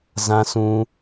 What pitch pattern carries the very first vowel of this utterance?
low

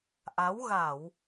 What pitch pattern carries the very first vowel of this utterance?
rising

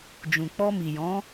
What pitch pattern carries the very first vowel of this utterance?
low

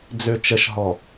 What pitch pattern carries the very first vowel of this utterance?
low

